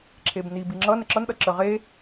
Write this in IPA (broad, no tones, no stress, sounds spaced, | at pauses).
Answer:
ǁʰ e b n i b i ŋ͡ǁ ʌ n ə ǁ ʌ n ɗ ʌ ǁ ə ʁ e